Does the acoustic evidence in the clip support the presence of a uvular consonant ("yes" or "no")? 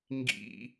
no